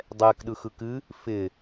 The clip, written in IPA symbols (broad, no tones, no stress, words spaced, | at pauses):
dˤɛkɗɯ xɯkɨ | fɪ